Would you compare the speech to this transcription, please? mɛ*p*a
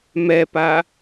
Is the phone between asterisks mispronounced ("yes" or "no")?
no